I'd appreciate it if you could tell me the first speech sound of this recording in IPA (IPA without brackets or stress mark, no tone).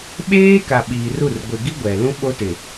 ɓ